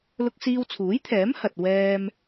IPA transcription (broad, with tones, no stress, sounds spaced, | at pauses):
l ʊ˧ k̚ s iː˧ w t͡sʰ uː˨˥ j t̪ʰ ɛː˨˥ m h ɐ˧ t̚ w ɛː˥ m